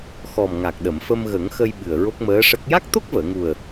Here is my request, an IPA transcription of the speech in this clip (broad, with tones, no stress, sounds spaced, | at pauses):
x ɔ˨˩ m ŋ a˨˩ k̚ ɗ ə˨˩˨ m f ə˧ m ɣ ə˨˩˦ ŋ x ə˧ j ɓ ɨ˨˩ ə̯ ɹ o˦˥ k̚ m əː˧˥ ʂ ə˦˥ k̚ j a˦˥ k̚ t̪ o˦˥ k̚ v əː˨˩˨ ŋ u˨˩ ə̯